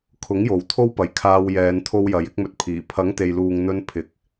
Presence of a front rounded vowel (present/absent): absent